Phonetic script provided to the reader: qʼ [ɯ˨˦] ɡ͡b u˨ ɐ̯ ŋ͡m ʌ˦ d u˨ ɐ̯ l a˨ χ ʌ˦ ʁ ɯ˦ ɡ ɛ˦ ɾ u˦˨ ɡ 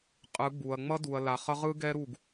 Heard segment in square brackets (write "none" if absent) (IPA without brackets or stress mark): ɯ˨˦